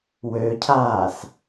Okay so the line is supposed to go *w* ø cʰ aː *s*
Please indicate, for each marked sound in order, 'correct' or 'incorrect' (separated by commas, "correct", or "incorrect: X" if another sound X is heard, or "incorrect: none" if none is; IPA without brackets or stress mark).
correct, correct